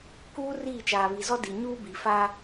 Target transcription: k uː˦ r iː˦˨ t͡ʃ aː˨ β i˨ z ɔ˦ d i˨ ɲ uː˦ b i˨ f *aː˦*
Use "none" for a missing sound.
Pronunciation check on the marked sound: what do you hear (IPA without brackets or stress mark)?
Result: aː˦